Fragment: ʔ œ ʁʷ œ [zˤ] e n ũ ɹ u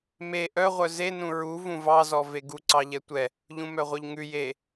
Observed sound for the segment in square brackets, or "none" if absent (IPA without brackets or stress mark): z